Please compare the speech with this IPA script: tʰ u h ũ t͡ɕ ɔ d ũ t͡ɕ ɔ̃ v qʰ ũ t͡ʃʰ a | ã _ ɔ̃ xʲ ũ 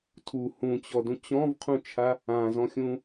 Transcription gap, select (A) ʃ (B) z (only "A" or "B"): B